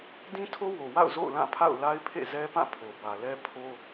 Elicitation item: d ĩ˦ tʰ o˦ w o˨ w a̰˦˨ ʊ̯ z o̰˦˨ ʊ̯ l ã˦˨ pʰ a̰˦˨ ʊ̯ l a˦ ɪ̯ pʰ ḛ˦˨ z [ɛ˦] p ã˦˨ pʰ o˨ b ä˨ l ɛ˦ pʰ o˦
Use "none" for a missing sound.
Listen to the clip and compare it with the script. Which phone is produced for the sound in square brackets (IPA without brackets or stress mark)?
ɛ˦